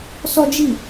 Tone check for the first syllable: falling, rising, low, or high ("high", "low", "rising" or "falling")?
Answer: high